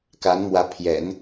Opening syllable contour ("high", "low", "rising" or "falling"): rising